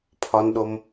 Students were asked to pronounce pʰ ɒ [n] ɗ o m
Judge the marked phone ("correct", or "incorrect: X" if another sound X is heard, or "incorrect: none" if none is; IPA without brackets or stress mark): correct